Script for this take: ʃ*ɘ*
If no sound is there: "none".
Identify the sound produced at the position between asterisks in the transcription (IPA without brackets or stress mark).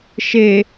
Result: e